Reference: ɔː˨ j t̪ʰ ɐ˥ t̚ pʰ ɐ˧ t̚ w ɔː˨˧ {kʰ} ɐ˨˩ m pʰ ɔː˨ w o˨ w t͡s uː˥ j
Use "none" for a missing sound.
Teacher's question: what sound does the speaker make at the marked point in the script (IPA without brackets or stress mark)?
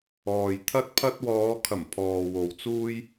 kʰ